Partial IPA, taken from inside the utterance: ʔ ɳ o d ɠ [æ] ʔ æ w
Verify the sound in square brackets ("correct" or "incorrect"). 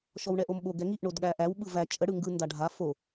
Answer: correct